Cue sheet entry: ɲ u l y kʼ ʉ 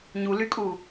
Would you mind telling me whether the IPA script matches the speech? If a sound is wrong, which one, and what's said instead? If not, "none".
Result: ʉ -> u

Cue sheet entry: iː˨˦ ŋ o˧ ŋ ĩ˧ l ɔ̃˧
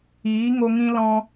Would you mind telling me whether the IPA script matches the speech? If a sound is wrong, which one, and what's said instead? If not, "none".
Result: none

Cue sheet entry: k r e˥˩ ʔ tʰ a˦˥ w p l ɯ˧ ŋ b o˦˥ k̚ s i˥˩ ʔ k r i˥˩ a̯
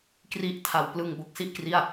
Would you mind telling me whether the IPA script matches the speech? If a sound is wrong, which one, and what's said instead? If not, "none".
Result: e˥˩ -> i˥˩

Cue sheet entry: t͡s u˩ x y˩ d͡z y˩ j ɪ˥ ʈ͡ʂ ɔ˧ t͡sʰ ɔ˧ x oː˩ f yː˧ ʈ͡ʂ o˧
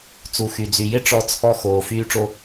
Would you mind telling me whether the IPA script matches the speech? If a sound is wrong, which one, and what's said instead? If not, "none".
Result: none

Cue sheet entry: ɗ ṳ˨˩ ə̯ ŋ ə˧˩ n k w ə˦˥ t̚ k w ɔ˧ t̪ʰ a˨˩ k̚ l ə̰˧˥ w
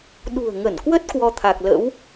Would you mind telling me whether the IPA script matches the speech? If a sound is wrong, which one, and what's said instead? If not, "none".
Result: none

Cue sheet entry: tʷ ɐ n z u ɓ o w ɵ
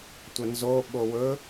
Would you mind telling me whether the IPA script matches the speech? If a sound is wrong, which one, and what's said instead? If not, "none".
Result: u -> o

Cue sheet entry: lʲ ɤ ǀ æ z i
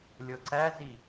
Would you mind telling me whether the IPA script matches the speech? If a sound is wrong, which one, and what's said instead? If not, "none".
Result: none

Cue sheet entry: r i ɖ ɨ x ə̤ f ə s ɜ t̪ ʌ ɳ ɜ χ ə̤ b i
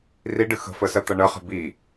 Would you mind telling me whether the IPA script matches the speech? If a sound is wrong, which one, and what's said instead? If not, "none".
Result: none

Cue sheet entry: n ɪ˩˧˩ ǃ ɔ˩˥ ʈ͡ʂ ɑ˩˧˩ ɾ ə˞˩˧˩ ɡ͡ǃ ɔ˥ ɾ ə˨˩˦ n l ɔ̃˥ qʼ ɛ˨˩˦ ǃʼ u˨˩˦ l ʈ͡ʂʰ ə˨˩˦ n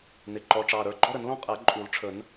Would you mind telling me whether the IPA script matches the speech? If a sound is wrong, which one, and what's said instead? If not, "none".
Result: none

